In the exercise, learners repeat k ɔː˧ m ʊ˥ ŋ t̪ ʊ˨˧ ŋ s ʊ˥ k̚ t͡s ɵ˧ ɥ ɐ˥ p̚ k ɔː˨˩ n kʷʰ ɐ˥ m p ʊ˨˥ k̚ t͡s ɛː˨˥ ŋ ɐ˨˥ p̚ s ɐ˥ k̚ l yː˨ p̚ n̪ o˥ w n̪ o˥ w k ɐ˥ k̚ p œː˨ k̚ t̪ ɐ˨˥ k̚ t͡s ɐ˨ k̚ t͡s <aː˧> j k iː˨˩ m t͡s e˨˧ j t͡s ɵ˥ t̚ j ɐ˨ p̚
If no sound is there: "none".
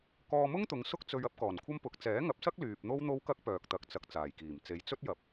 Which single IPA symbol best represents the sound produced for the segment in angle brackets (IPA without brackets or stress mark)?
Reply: aː˨˩